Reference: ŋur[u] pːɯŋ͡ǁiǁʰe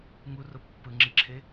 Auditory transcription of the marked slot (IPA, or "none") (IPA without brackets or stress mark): o